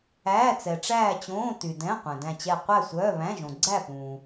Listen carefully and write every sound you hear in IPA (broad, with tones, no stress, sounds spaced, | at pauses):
æː˧˥˧ t͡s ɛ˨ ʈ͡ʂ æː˥˧ t͡ɕ õː˧˥˧ t y˨ d ɛ̃˧˥˧ qʷ ɛ̃˨ d æ̃˥˧ t͡ɕ ɛ˥˧ qʷ æ˥˧ sʷ œː˧˥˧ β æ̃˧˥˧ ʒ õ˨ ɡ͡ǀ æ˥˧ p ũː˨